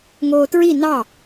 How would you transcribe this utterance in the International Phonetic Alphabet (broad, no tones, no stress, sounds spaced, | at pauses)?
ŋ oː t ɹ i n ɑ